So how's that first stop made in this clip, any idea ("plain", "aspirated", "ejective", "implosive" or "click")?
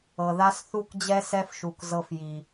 plain